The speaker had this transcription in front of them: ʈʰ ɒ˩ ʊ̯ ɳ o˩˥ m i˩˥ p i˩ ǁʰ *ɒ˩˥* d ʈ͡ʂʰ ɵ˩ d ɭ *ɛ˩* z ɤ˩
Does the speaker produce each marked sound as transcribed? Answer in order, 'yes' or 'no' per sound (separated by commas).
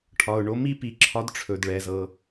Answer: yes, yes